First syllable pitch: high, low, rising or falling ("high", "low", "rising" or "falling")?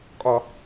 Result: low